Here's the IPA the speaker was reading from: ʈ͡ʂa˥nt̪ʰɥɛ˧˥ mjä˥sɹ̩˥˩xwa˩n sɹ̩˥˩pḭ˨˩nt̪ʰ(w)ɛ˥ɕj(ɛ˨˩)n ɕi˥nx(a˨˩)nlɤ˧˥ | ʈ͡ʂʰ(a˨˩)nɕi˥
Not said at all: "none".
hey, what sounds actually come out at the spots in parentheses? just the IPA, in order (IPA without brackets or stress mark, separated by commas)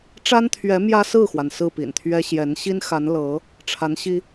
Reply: ɥ, ɛ˧˥, a˧˥, a˧˥